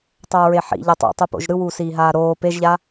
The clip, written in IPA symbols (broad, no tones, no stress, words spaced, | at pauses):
tˤoːɹeħḭ ʎʌtˤṵ tˤupo̰ʒɾɯwuː siːɦaːɾoː peʒʎa